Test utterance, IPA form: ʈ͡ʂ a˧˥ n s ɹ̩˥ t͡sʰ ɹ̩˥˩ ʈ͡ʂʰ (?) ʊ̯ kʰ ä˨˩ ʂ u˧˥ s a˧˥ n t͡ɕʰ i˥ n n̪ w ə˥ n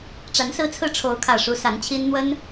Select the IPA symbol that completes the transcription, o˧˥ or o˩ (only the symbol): o˧˥